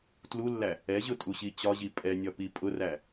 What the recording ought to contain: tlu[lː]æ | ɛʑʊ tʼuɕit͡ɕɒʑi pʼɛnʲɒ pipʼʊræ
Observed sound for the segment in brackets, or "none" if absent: lː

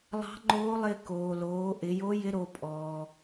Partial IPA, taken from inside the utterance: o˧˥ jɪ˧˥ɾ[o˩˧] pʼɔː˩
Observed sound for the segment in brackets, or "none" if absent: o˩˧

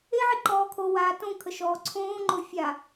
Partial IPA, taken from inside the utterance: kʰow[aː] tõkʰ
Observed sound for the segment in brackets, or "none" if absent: aː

